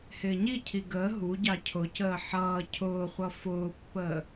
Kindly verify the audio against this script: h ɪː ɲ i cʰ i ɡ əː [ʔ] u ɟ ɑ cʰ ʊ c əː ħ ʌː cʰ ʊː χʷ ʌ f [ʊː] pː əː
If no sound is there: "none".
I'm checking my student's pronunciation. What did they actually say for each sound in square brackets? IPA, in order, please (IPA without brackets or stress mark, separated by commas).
ɦ, ʊː